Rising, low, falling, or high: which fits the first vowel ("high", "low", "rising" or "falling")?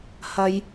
high